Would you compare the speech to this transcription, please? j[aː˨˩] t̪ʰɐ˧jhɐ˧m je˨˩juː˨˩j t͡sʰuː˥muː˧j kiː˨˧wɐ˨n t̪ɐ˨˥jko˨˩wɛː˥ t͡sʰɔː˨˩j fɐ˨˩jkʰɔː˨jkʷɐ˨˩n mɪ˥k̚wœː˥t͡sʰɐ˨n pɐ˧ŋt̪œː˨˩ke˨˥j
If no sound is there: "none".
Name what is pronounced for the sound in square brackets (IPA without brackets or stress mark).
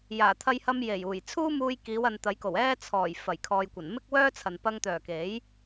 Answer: aː˨˩